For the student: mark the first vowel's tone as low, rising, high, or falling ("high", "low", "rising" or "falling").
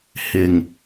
low